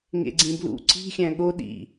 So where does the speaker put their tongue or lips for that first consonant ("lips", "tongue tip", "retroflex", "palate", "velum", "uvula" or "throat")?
velum